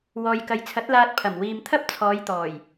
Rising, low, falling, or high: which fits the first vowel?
low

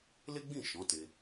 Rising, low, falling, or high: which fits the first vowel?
high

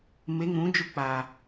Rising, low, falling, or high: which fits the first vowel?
rising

